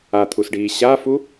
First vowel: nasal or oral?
oral